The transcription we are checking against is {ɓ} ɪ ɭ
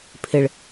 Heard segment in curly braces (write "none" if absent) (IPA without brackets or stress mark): pʰ